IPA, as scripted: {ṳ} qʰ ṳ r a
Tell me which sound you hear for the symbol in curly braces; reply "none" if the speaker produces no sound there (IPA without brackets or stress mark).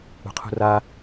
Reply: ṳ